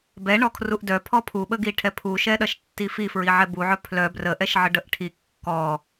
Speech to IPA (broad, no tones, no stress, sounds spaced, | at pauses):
b ɛ ɳ ɔ kʰ r u ʔ d œ pʰ ɔ pʰ u ɓ ə ɡ i ʈʰ ɛ pʰ u ʃ ɛ ɗ ɐ ʃ tː i f i f ɹ i ʕ ɛ b u ʕ œ pʰ l œ b r ə ʔ ɛ ʃ ʕ ə ɖ ə ʔ ʈʰ i kː ɔ